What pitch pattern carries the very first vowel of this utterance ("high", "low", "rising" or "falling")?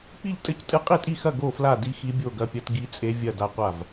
falling